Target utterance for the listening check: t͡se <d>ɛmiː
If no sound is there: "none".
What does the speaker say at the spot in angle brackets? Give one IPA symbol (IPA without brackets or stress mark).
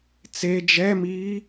d͡ʒ